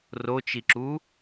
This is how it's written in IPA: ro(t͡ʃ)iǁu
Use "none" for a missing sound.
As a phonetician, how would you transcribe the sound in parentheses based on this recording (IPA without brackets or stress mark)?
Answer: t͡ʃ